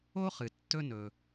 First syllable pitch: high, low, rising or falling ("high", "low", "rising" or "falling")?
high